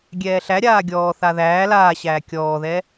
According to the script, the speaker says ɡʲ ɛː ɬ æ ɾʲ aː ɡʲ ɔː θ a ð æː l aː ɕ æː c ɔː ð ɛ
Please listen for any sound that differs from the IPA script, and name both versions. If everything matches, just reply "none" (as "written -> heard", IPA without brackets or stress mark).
c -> kʲ